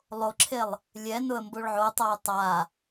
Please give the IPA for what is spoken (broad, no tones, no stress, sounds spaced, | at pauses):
lˠ o ǁʰ e lˠ | lʲ ɛ n ʊ ə̯ m b o ɭ ʕ o tˤ a ʊ̯ tˤ a